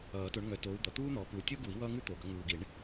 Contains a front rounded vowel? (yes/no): yes